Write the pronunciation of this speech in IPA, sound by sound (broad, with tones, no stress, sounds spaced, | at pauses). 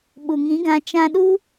ɓ u˨ ŋ ĩ˨˦ ɡ ã˧ t͡ʃ ã˧ ɗ u˦